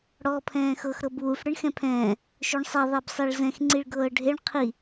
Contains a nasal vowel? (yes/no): yes